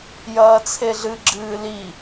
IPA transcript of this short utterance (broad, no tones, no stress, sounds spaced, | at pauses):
j ɐː t͡sʰ e ɮ ɨ ɡ͡ǁ ɨː l i